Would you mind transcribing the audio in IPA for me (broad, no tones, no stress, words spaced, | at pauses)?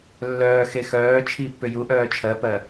lːœːxe xœː t͡ʃʰipːʏ juʔœː t͡ʃʰɜpɜ